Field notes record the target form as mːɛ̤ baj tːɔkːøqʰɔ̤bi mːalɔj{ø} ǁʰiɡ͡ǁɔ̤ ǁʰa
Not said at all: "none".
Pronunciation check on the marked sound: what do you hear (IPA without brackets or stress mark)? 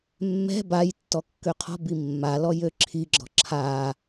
ø